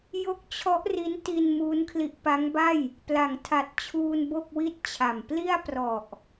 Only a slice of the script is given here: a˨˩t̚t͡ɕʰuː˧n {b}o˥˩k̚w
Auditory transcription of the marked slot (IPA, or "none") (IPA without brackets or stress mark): b